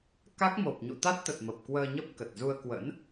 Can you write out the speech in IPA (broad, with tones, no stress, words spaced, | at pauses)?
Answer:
ka˦˥k̚mo˨˩p̚ ɲṵ˧˨t̪a˦˥t̚t̪ə˨˩t̚ mə˨˩p̚ kwəː˧ɲə˦˥p̚kə˨˩t̚zu˧ə̯ kwə̰˧˥n